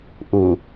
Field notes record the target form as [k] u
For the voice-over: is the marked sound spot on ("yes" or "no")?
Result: no